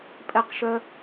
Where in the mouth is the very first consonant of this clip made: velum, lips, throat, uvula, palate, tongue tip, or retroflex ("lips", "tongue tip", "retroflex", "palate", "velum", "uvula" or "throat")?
lips